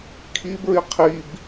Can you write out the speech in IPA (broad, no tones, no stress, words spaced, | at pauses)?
kʰibɹi qʰib